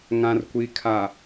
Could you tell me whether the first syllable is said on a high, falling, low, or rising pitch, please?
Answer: low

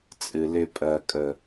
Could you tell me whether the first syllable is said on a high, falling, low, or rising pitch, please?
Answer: low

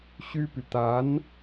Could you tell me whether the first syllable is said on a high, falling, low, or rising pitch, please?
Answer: high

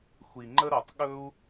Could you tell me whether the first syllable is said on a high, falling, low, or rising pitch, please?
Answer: low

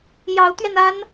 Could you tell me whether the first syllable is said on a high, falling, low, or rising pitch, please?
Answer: rising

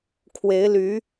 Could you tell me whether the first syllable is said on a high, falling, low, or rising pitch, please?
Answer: rising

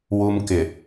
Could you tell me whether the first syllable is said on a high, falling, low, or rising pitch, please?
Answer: high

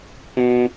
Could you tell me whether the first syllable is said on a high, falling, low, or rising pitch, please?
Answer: high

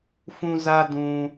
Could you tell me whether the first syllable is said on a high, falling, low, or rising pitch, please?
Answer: high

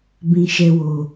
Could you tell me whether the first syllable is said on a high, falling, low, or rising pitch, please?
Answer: high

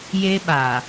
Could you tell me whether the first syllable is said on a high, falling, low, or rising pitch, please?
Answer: high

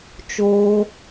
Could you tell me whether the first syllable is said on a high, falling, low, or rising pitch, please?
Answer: high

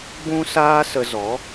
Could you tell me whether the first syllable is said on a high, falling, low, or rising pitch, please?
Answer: high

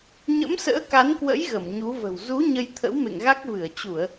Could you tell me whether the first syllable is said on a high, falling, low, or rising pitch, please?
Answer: rising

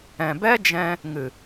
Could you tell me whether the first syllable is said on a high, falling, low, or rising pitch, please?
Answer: low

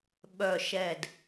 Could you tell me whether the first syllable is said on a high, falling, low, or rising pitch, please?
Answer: low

